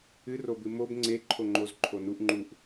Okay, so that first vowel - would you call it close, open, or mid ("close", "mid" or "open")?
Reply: close